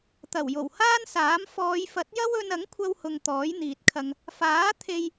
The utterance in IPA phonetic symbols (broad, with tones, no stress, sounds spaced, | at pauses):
t̪ ɐ˨˩ w j o˨˩ w h aː˥ n s aː˨˥ m f ɔː˨˧ j f ɐ˨˥ t̚ j ɐ˥ w ɵ˧ n ɐ˨˥ ŋ kʷʰ ɐ˧ w h ʊ˨ ŋ t̪ ɔː˨˥ j n̪ iː˨ t̚ kʰ ɐ˧ ŋ | f aː˨˥ t̪ʰ e˧ j